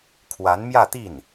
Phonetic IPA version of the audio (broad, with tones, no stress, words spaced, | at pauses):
kʰwa˧˥nmjä˥˧t̪i˥˩n